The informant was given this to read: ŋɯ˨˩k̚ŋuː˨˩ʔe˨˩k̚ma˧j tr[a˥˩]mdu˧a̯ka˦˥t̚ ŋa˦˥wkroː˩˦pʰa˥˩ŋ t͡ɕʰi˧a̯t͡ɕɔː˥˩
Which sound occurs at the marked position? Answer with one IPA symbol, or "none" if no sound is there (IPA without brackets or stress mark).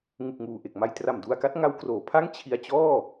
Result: a˨˩